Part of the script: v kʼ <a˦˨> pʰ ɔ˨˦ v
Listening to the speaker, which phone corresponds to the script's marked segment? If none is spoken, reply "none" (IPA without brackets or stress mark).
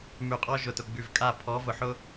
a˦˨